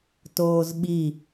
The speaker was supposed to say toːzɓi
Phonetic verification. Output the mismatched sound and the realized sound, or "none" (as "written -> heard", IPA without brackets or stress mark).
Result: none